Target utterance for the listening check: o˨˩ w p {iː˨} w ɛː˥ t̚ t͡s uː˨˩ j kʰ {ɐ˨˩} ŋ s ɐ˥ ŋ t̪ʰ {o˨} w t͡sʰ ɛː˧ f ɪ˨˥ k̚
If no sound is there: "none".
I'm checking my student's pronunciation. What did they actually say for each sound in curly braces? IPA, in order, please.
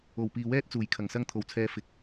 iː˨, ɐ˨˩, o˨

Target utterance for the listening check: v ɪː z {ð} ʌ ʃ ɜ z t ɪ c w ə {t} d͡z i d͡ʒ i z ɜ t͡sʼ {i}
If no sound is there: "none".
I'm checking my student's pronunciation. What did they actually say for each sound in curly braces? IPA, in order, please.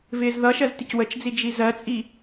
ð, t͡ʃ, i

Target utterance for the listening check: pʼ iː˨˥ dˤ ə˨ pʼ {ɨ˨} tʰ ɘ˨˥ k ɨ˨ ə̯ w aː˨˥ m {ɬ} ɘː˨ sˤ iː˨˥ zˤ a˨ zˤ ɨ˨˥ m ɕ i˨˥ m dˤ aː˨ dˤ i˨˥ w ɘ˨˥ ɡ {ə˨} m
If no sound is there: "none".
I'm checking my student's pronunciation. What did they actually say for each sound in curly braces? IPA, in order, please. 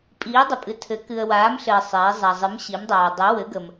ɨ˨, ɬ, ə˨

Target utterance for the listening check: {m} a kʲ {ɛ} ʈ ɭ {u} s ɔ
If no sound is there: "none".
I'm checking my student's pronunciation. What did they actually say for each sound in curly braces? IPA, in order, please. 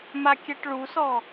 m, ɛ, u

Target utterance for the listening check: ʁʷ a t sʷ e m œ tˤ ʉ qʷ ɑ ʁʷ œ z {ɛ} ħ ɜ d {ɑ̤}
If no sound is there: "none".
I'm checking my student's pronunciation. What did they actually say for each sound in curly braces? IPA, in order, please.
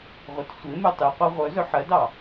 œ, ɑ

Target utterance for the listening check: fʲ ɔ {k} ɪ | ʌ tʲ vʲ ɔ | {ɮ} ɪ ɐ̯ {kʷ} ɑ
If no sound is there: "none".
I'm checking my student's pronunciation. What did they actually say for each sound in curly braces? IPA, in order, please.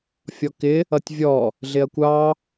k, ɮ, kʷ

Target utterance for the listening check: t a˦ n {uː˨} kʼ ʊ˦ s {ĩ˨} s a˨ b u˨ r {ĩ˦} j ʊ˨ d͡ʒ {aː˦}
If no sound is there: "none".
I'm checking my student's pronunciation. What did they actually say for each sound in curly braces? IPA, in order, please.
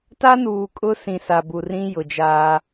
uː˨, ĩ˨, ĩ˦, aː˦

